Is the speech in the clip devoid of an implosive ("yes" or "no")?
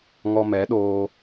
no